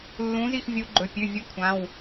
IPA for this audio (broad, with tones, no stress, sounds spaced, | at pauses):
lː ũ˨˥ z i˥˩ x vʲ u˨˥ ɡ͡ǃ ɵ˩˧˩ pʲ ʉ˩˧˩ vʲ ʉ˨˥ kʷʰ ã˩˧˩ w